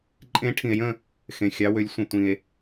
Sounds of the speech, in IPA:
ǃʼẽ˨˦ ʈʰĩ˨e̯jə̃˦˨ | xẽ˨xʲɑ˨˦wø˨˦lʲ sʷə̃˨ tʷĩ˨e̯

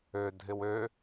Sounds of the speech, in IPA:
ødʱɪw ø

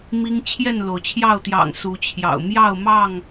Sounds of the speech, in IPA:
mi˦ŋ t͡ɕʰjɛ˥˨nlo˩ʊ̯t͡ɕʰjɑ˥˨ʊ̯t̪jɑ̰˨˩ŋ su˨˦t͡ɕʰjɑ̰˨˩ʊ̯ mjɑ˥˨ʊ̯mɑ˥˨ŋ

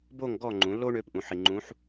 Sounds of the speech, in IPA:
bo˥˨ŋ ɡɔː˥˨ŋ͡ǃũ˩˥lːoː˥ ɳøː˧˥pʔũ˩˥ ħi˨ŋ͡ǃũ˧˥ħ

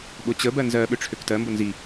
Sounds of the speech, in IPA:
ɓʊt͡ɕə bɜnzɜ ɓøʈ͡ʂʰøktɜ mbʊnzi

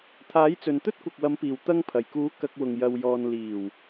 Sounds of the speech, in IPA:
t̪ʰaː˨˥jt͡sɵ˨nt̪ɵ˥t̚ kʷɐ˨k̚wɐ˨˧mpiː˨˩w t̪ɐ˧ŋpʰɐ˨˩jkuː˨˥ kɐ˨k̚wʊ˨˩ŋ jɐ˨wjɔː˨n liː˨˩w

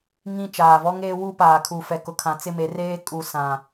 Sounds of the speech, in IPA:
ŋĩ˦ t͡ʃaː˨vɔ˦ ŋeː˦wu˦ paː˨kʰu˨fɛ˨kʊ˨ kʰã˨t͡sɪ˦˨me˨˦reː˦ kʼu˨ sã˨

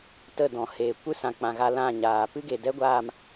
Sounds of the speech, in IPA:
tə˦˨dɔ̃˨ heː˨ kʷɨ˦sã˨k͡pã˨ ɣa˧ lã˦˨ɲaː˨ pɨ˦ɡe˨dɛ˦ ɡʷaː˦˨m

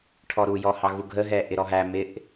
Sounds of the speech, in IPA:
ʈʰɔɾujɔ hɑɣuɡʱəɦɛ ʔɪɾɔɦæ mɪʔ

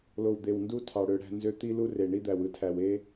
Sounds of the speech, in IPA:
lo˨wd̪e˨w ndu˦ tʰɑ˨ɽø˦ɽæ̤˦ nzø˦ t̪i˦lu˦ re˨ɳi˦d̪æ˨w ɯ˦tʰæ˨we˦

